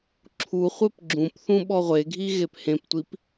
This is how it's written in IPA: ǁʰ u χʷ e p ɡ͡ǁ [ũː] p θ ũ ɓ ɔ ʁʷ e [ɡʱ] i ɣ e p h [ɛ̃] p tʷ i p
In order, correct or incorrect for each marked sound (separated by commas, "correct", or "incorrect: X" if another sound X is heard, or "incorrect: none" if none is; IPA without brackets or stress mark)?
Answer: incorrect: ũ, correct, incorrect: ẽ